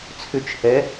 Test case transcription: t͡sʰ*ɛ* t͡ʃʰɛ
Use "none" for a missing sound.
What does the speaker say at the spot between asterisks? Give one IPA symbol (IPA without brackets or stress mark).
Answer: ʏ